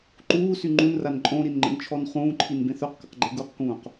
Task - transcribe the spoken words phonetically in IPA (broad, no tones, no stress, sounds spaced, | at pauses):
ǃ uː s y ŋ͡ǃ ũ n r a n ǃʼ õ ɾ i n ŋ͡ǃ ə̰ n t͡ʃʰ ɔ n χ ũː ǃʰ i n b ẽ θ œ q k ə̰ q ɡ͡ǃ e ɡ u q k ũː q